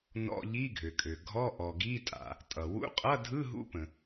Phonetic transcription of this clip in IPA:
n ɔ̰˧˥˧ ʎ i˧˥˧ ɡʱ ø˩ kʼ ø˩ ɡʱ ɔ˧˥˧ ʔ ɔ˩ ɡ i˧˥˧ tʼ a̰˩ | tʼ ʌ˩ w ṵ˧˥˧ qʼ ʌ˧˥˧ dʱ ɯ˧˥˧ ɦ ṵ˧˥˧ p ə̃˩

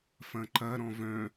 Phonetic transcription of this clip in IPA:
f ɐ̃ ǃ ɐ ɾ ɔ̃ v œ̃

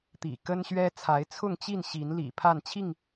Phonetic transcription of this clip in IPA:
t̪ ḭ˨˩ k ə˦ n ɕ ɥ ɛ˦ t͡sʰ a˨˦ ɪ̯ t͡sʰ ʊ˥˨ ŋ t͡ɕ i˥˨ n ɕ i˨˦ n l ḭ˨˩ pʰ a˥˨ n t͡ɕʰ i˥˨ ŋ

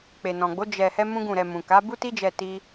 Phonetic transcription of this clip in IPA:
k͡p e˨ n ɔ̃˨ ɡ͡b o˨˦ d͡ʒ ɛ˧ h ɛ˦ m ũ˦ ɡ ũ˦˨ ɾ ɛ˧ m ũ˨ k a˨˦ b u˦ t i˦ d͡ʒ ɛ˧ t i˦

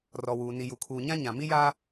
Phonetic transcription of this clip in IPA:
r ɔ˨ w uː˨ n i˨ j u˨ kʰ uː˨ ɲ ã˦ ɲ ã˨ m i˦ j aː˦

